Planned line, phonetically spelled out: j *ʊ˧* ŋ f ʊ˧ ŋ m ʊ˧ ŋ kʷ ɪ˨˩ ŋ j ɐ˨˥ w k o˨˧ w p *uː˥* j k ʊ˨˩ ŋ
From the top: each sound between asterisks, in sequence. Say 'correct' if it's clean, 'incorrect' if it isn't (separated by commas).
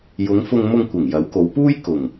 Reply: incorrect, correct